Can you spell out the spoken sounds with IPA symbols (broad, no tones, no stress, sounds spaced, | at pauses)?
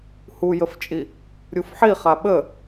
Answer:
h u j ə f t͡ʃʼ i | ɾʲ u f ħ i χ a ɓ ə